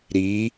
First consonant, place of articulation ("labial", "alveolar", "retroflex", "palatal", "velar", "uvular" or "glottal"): alveolar